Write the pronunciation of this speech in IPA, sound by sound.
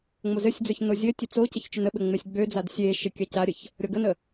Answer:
ŋ͡m o z ɘ sʲ d͡z ə˞ ç n o zʲ ɘ tʲ ɘ t͡s o c ə ç t͡ʃ ø n ə ɓ ɘ ŋ͡m e sʲ ɡ͡b ø d͡z a d sʲ e ʃ ɘ kʲ a c a ɾʲ ə ç | ɾʲ ɔ ɡ ə n ə

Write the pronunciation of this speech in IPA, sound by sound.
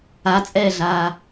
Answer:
a t͡sʼ ɛː ɮ aː

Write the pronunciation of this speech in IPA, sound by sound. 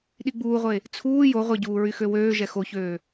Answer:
ɗ i ɡ͡b uː ʁʷ e | t͡sʰ uː j o ʁʷ e ɟ uː ɹ y x ø w øː ʒ ɛ x o ç øː

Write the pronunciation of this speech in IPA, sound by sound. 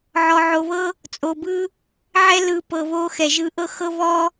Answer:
ʕ ɔ˧ ʕ o˧ β ɤ˥ | t͡sʼ o˧ b ɯ˥ | ʕ ɛ˥ l ɯ˧ p ɤ˧ β o˥ x ɛ˧ ʒ ɯ˥ ʔ ɤ˥ x ɤ˥ β ɔ˥

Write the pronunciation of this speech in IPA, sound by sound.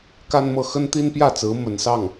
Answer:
k a˥ n m ɤ˥˩ x ə˥ n t̪ i˥ n p j ä˥˩ t͡s ɹ̩˧˥ m ə˧˥ n s ɑ˥˩ ŋ

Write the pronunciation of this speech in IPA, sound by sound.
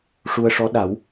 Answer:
ʂ u˧ ə̯ ʂ ɔ˧˥ ɗ a˨˩˦ w

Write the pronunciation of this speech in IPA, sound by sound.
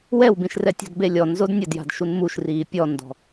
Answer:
w ɛ w b ĩ ʃ r ɛ tʲ ɔ̤ d b e lʲ ɔ n z o d nʲ ɘ d j a̤ d ʃ u n m u ʃ r iː pʲ ɔ n d ɔ̤

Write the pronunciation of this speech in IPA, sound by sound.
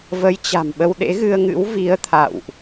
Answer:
v ə˨˦ j t͡ɕ a̤˨˩ m ɓ ə˧ w ɗ ḛ˧˥ ɣ ɨ˧ ə̯ ŋ ɨ̰˧˥ w v i˨˦ ə̯ t̪ʰ a̰˧˨ w ʔ

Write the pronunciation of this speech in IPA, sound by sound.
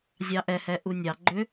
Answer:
zʲ ɑ ʔ ɛ h ɛ ʔ u nʲ ɑ ɡ͡ǃ ʏ

